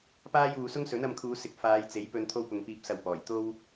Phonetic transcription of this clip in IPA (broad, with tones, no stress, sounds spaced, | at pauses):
p aː˥ j uː˧ s ʊ˥ ŋ s ɵ˨˥ n ɐ˧ m kʰ uː˨˧ s ɪ˨˥ k̚ f aː˨˧ j t͡s e˨˥ j p ɵ˧ n t̪ʰ o˥ w p ʊ˧ ŋ p iː˧ p̚ s ɐ˧ w p ɔː˨˩ j t̪ o˥ w